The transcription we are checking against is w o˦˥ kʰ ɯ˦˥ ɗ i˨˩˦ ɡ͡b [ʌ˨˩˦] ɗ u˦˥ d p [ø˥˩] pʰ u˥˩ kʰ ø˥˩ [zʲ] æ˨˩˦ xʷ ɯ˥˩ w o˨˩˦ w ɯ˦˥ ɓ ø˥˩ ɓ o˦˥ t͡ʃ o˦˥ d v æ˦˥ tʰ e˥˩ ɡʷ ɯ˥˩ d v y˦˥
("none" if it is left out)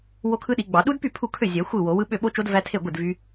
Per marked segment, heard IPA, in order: ɑ˨˩˦, y˥˩, zʲ

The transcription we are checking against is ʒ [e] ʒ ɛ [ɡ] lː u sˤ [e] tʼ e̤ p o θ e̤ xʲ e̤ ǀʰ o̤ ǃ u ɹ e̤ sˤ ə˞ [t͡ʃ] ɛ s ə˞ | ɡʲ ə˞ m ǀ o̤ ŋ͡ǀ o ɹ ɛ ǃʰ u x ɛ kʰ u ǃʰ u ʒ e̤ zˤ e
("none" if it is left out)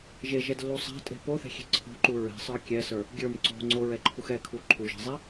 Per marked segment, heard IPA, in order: e, d, e̤, kʲ

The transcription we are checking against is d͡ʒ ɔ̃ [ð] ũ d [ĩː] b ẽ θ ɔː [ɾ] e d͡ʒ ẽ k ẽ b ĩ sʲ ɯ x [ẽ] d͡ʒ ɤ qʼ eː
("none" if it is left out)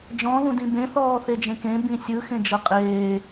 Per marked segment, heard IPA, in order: ð, ĩ, θ, ẽ

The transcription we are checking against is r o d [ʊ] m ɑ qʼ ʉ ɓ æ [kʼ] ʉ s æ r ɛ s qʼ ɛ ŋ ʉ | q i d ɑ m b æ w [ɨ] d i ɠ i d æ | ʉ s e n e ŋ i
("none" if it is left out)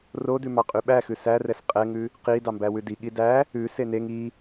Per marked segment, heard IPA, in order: ʉ, x, ʉ

